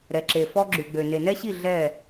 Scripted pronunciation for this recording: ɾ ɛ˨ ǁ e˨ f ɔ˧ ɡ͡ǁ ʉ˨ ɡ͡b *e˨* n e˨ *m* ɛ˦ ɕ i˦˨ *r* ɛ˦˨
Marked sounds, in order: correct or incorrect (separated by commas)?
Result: incorrect, incorrect, incorrect